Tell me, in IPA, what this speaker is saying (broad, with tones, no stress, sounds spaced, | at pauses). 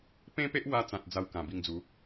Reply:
p ẽ˦ p e˦ ʔ w a˧ t͡s ã˨ t̚ d͡z a˧ w k ã˨˩ b i˧ ŋ d͡z u˨˦